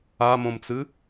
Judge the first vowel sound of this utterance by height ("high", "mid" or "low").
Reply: low